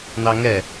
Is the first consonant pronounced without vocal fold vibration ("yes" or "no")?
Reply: no